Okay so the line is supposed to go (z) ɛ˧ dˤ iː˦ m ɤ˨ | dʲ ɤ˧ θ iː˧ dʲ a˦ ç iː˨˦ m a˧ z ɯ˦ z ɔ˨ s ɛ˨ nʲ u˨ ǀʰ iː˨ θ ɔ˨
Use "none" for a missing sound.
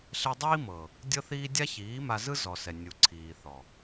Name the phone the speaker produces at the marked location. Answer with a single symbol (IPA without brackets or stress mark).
ɬ